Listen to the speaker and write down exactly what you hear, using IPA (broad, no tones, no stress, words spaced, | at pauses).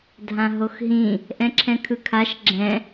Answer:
dʱãɦoxɦĩ | ʔɛ̃ǁʰɛ̃kʰɯkʰaʃ ɡ͡ǁɛ̃